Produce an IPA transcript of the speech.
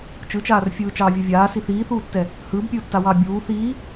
t͡ʃ ɯ t͡ʃ aː r fʲ ɯː t͡ʃ ɑː vʲ u vʲ aː s i θ iː θ uː tː ɛ | h ɯː b pʲ ɯː tː a w ɑː bʲ uː θ iː

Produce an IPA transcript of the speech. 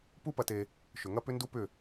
p u˦ p ɐ˧ t e˧ | ʃ ʏ˨ ŋ ɐ˦ p ʏ˦ n d u˦ p ʏ˦˨

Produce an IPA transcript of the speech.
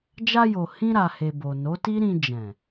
d͡ʒ a˧ j o˨ h ĩ˧ ɾ a˨ h e˨ b o˨ n o˨˦ t i˦ ɾ ĩ˧ d͡ʒ ɛ̃˨

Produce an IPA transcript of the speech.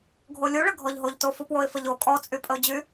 ɡʱ o lʲ u ɭ ə ɡʱ ɔ ʎ ɦ o ʎ t o f u p w o ɪ̯ f ə ʎ o kʼ ɔ t͡sʼ y pʼ ə ʊ̯ d͡ʑ y

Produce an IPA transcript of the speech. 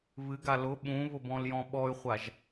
β ɨ ɡ a l ʊ ɓ ũ β ʊ b ɔ̃ l j ɔ̃ ɓ ɔ y̯ χʷ a ʒ

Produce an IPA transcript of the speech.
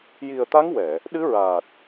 j i˨˩ ə̯ t̪ a˧˥ ŋ w ɛ˨˩˨ | ɗ ɨ˧˥ ɹ aː˨˩ t̚

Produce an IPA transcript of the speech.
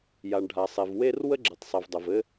j a˩ ɳ ɖʱ a˩ sˤ e˩ v w e˥ r w ə˥ ɡ͡ǁ i˩ tˤ sˤ i˩ v dˤ ɘ˩ v ɘ˥

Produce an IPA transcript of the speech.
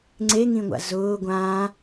ŋ͡ǀ e ŋ ĩ ŋʷ a̰ z ʊː ɡʷ ã

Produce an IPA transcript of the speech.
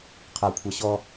qʰ ɐ kʷʰ ɐ ɕ ɔ

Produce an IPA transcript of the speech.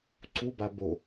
ǀ u b a b o

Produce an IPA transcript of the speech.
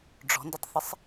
ɖ͡ʐ ɔ̤ n d ə tˤ θ ɪ sˤ

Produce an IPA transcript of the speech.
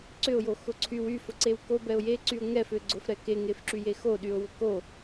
ǀ ʏ ʊ̯ j o x ʊ ǀʰ y w y f ʊ ǀ e w k o b ɛ ʊ̯ j e ǀ y ʊ̯ ŋ ɛ f ʏ ɡ͡ǀ ʊ f ɾ ɛ k e ŋ e f ǁ y j e x o ɗ y ʊ̯ w ʊ k o

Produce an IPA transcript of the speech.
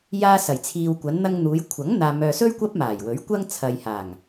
j aː˧ s ɐ˨˩ j t͡sʰ iː˨ w kʷ ɐ˨˧ n n̪ ɐ˧ ŋ n̪ uː˨˧ j kʷʰ ɐ˨˥ ŋ n̪ aː˨ m œː˨ s ɵ˥ ɥ kʷ ɐ˥ p̚ m aː˨˩ j w ɵ˨˥ ɥ kʷ ɐ˧ ŋ t͡sʰ ɐ˨ j h aː˨˩ ŋ

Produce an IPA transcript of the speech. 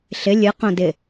ɬ ɪ lʲ ɨ q õ d ɪ

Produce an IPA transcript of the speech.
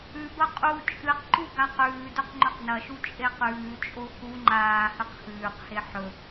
ʉ b ɐ qʼ u t͡ʃʼ ɨ q ǃ u ɡ a q ʉː d ɵ q ŋ͡ǃ ɵ q n ɐ ʃ u t͡ʃʼ e q ʉː t͡ʃʼ o x u ŋ͡ǃ aː h ɨ q x ʉː q h e ħ ɵ

